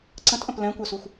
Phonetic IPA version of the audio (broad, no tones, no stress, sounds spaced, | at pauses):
ǀ ə̃ t ʔ ə̃ p l ɛ̃ kʷ œ s u xʷ